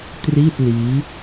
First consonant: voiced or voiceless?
voiceless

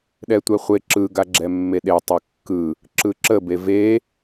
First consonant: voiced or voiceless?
voiced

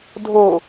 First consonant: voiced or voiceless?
voiced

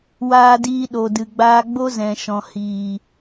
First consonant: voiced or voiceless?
voiced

